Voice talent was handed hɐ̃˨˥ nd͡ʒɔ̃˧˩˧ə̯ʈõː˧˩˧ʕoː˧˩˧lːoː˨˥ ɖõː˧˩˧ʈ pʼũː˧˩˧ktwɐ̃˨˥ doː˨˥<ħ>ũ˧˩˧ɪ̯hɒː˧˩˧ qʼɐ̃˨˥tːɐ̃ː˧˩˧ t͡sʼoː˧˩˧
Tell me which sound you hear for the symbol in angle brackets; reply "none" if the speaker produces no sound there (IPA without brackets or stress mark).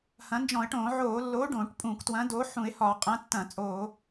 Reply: ħ